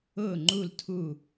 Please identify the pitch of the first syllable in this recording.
falling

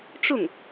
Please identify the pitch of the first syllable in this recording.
falling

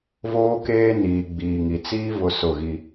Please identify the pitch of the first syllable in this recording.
high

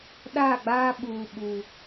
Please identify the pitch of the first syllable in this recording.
falling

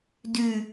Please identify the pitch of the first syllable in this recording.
low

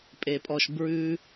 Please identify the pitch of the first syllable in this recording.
low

